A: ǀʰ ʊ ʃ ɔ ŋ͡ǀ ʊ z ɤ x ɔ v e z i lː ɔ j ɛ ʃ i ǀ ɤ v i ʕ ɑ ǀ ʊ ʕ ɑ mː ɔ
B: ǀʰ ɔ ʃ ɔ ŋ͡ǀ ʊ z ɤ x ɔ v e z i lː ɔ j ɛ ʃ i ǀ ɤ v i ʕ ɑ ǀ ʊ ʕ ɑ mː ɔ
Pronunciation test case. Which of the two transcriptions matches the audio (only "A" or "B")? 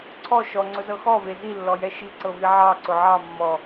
B